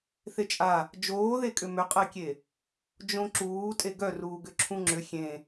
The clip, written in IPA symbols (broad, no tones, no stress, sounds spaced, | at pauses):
θ e t͡ʃʼ a | d͡ʒ oː ð e kʼ ʏ m ʏ qʼ ɛ kʲ e | d͡ʒ õ ǁ uː tʼ e ɡ œ r uː ɡ ʏ ǁʰ ũ ŋ͡ǁ ʏ xʲ ẽ